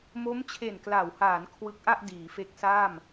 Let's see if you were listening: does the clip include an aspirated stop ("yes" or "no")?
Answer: yes